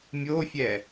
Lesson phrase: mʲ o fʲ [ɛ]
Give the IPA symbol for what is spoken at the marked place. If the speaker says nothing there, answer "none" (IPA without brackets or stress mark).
ɛ